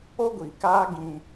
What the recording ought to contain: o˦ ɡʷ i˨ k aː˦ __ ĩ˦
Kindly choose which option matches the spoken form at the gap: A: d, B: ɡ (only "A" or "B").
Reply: B